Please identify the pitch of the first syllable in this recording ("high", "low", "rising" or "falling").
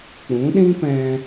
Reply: rising